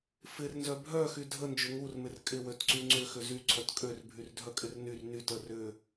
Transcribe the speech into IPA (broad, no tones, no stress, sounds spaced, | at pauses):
f ɪ r n z œ bʱ œ x y dʱ ə n d͡ʒ ʏ ŋ u r m ɪ r kʼ ɪ w ø t ǀ y ŋ͡ǀ ʏ x ʏ z y ǀʰ œ t kʼ ø r bʱ y r dʱ œ kʼ ɪ r n y r n y t ə r ʏ